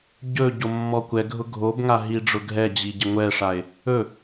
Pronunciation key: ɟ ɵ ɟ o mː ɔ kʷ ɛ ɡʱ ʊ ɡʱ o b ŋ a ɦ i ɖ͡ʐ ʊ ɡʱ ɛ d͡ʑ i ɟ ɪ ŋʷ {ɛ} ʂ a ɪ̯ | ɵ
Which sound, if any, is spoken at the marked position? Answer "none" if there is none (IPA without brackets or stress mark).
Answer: ɛ